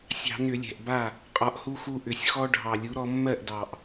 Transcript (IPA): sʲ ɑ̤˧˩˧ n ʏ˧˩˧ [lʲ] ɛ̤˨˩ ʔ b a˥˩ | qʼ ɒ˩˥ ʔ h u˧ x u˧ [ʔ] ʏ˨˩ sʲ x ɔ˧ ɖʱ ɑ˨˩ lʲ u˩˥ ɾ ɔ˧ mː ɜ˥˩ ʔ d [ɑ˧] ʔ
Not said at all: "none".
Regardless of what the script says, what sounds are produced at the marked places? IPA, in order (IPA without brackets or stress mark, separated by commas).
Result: lʲ, ʔ, ɑ˨˩